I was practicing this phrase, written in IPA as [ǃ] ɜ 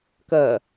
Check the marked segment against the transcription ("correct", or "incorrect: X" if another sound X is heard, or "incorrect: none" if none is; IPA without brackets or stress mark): incorrect: k